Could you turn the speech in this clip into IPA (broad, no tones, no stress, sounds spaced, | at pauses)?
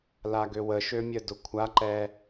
l a ɡ ø w ə ʃ ø mʲ ə d ʊ kʷʰ a ǃ ɛ